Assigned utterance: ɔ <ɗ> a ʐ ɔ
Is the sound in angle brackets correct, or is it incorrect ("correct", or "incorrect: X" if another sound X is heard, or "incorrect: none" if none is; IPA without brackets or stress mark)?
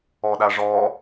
correct